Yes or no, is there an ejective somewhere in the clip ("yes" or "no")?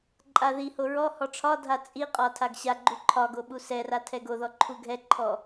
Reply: yes